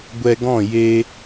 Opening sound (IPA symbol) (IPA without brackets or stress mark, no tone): ɡʷ